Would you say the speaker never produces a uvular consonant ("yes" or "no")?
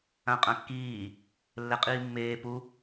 no